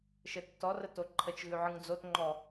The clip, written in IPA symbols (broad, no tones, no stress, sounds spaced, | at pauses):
ʃ ɘ tː ɔ r ə t o ǃʰ ə t͡ʃ ɣ ʉ ʕ ɯ ŋ d͡z o t ŋ͡ǃ ɔ